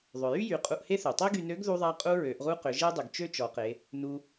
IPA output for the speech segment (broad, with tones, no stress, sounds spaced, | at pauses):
ðˤ ʏ˩ j y˥ j y˩˧ qʼ u˧ ʔ h e˥ θ ø˩ tˤ e˥ ɡ y˧ n ø˧˥ ɡ ð u˧ ðˤ a˧ qʼ u˧ ɹ ø˩˧ ʔ ʁ u˥ q ʏ˩˧ ʒ e˥ dˤ ʏ˩ ɡ t͡ʃ ø˥ t͡ʃ ɔ˩˧ q e˩˧ | n u˧